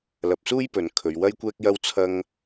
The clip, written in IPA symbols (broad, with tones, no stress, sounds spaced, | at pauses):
l ɐ˧ p̚ s uː˥ j p ɵ˨˧ n kʰ ɵ˧ ɥ w ɐ˥ j kʷ ɛː˥ k̚ j ɐ˥ w t͡sʰ ɐ˥ ŋ